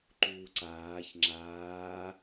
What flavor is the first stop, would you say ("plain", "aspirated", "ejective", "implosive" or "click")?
click